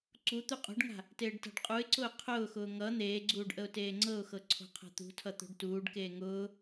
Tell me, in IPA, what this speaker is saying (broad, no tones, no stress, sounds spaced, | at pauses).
ǀ u t̪ u qʼ o̤ ɖ ŋ a̤ | t eː ɖ t a̤ ɖ qʼ u ɪ̯ ǀ ʊː qʰ ʊː x ʊː ŋ ʌ n̪ eː ɡ͡ǀ uː ɖ ʔ ə ʊ̯ t eː ŋ͡ǀ ɤ ʊ̯ x ɤ ǀʰ o̤ qʰ a̤ t̪ ṳ tʰ ʌ t̪ o̤ ɖ t uː ɖ k eː ŋ ʊː